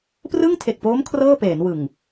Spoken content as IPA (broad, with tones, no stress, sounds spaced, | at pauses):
p r ɯ˥˩ ŋ tʰ e˨˩ k̚ p oː˦˥ m kʰ r ɤː˥˩ p eː˩˦ n w ɯ˨˩ ŋ